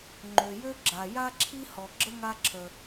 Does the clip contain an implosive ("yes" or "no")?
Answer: no